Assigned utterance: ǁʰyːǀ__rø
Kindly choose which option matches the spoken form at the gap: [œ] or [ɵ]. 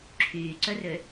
œ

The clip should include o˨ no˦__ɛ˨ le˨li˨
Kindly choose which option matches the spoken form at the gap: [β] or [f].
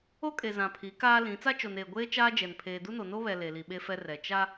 β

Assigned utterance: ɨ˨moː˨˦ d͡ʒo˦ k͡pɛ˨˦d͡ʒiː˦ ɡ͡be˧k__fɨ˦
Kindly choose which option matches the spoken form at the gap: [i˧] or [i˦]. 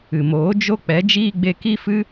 i˦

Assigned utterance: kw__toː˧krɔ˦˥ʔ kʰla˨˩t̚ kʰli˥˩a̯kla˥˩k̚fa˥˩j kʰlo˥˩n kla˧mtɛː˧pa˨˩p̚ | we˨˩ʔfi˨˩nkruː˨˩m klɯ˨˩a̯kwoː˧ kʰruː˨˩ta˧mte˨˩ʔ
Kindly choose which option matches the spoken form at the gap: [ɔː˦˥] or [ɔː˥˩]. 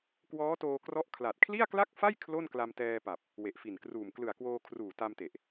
ɔː˦˥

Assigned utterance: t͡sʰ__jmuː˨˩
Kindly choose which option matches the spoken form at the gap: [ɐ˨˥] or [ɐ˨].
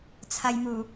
ɐ˨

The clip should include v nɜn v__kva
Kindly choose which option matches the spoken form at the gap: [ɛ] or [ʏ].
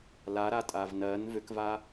ʏ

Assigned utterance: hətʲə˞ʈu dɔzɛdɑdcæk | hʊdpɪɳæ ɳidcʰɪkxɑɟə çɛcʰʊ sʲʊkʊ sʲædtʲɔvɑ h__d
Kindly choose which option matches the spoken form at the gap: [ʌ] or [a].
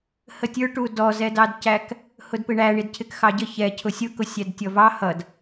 ʌ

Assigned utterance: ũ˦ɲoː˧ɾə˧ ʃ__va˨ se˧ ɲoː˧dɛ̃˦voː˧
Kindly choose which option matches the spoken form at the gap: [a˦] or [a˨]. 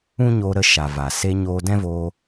a˨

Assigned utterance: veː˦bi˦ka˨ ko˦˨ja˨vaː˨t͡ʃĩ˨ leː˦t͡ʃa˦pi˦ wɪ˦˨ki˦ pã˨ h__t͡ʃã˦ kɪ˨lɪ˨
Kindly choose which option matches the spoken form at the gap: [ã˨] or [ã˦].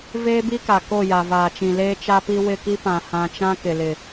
ã˨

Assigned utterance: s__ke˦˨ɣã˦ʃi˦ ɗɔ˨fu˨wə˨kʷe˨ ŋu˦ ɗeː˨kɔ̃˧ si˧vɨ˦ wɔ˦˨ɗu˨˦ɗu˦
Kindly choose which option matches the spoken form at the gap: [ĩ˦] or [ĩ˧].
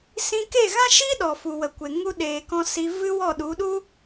ĩ˧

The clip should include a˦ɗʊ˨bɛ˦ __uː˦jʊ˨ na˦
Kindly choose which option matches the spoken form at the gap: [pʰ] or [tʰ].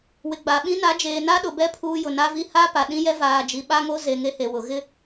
pʰ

